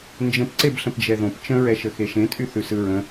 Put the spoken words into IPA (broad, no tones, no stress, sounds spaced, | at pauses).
n d͡ʒ ə̃ p ǀ e b ɬ ə̃ p d͡ʒ ɛ ð õ p t͡ʃ ə̃ ɹ ɛ ʃ ə x e ʃ ẽ tʼ y θ ʉ s ɯ ɹ ə̃